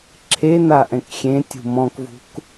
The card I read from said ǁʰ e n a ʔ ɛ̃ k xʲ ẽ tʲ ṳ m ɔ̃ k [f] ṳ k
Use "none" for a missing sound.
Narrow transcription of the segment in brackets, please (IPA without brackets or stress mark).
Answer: v